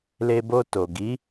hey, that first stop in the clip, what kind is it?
plain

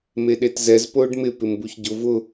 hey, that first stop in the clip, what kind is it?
implosive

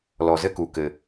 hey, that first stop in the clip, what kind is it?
plain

